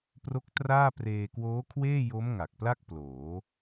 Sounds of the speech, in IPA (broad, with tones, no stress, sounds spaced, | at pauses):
p r o˦˥ k̚ t r aː˥˩ p r eː˧ k w oː˦˥ kʰ w eː˥˩ j o˦˥ m ŋ a˨˩ k̚ p l a˥˩ k̚ p l oː˩˦